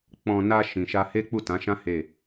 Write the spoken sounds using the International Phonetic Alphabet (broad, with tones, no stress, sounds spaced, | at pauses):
k͡p ɔ̃˧ n a˧ ʃ ĩ˨ ʃ a˧ h e˦ k͡p u˦˨ t ã˨˦ ʃ ã˦ h e˦˨